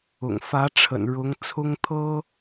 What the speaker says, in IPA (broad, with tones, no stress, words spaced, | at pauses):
ʊ̰˨˩ŋfä˧˥ʈ͡ʂʰə̰˨˩n ɻʊ˧˥ŋt͡sʰʊ˥ŋt̪ʰɤ˥